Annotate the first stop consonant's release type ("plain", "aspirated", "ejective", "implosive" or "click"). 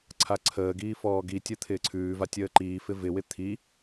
click